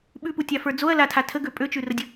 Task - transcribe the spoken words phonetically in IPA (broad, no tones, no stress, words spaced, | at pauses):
ɓʉputʲafə˞ d͡zoɐ̯latʰa tʰəɡø pʼøt͡ʃʉrədʲə